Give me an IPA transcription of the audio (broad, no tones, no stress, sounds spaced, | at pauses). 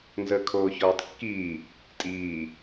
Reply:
n z əː kʰ oː ç ɔː tˤ kː iː | tʼ iː